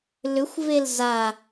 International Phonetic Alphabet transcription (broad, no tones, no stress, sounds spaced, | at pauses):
l ʏ xʷ v e l z a